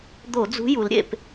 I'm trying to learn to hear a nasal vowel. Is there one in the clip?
no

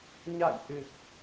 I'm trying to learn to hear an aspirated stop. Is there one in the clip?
no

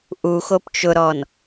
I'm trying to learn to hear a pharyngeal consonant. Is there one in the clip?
no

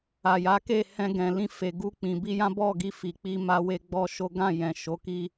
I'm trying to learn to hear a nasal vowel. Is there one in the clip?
yes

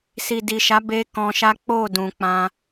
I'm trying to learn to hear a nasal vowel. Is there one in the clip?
yes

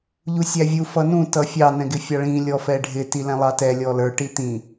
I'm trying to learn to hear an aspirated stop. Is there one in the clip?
no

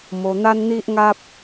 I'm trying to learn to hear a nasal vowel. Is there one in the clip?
no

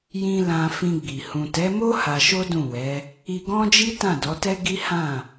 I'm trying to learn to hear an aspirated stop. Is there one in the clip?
no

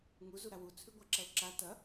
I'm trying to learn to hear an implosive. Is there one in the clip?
no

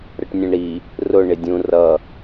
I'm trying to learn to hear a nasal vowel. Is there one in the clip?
yes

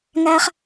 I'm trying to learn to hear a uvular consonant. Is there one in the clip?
yes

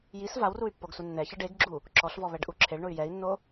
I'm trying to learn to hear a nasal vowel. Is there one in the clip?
no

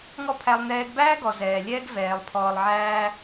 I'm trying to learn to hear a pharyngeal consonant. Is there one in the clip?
yes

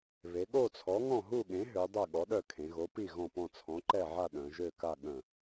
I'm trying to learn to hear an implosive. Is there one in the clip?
yes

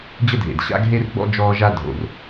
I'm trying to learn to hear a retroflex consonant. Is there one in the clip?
no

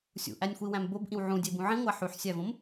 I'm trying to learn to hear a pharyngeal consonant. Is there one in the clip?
yes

